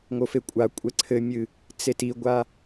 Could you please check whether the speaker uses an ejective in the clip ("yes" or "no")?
yes